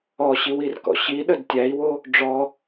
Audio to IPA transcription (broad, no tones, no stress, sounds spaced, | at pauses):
ɔ ɕ i w i r k ɔ̰ ɕ i ɗ ə d tʲ æ i̯ w o | ɖ͡ʐ ɔ